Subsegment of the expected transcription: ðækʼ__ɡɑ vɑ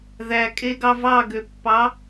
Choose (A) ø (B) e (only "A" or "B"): B